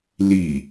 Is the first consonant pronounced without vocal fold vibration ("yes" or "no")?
no